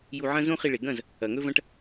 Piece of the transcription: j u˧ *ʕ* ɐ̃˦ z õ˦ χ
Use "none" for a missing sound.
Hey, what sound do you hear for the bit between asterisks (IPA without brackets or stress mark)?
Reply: ʕ